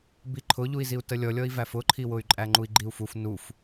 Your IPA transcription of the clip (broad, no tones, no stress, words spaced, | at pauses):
biǃʰʊʎui̯ziu̯ təlʲɔlʲɔi̯væf ʊǃʰiwʊy̯ ǃʼæŋ͡ǃui̯ɡ͡ǃiu̯fuf nuf